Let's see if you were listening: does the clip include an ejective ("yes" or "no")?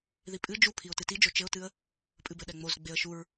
yes